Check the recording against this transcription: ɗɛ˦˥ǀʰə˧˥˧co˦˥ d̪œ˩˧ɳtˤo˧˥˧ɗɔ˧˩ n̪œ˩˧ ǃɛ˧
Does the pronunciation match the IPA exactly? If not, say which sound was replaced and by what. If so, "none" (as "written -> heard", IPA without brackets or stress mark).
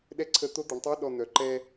c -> t̪